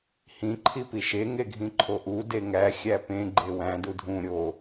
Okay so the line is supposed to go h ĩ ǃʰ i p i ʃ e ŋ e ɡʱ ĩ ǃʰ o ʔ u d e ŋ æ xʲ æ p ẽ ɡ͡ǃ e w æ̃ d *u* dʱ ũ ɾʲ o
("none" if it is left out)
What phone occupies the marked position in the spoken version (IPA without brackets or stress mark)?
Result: u